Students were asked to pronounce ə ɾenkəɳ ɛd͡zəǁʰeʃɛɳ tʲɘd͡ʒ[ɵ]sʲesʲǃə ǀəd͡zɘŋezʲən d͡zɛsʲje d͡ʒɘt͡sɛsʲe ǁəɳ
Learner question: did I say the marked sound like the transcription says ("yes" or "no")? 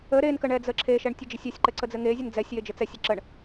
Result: no